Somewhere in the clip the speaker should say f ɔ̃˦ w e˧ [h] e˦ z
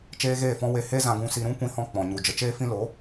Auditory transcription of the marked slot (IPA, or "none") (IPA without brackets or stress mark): h